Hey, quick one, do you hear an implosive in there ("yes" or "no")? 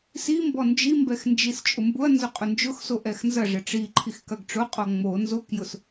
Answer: no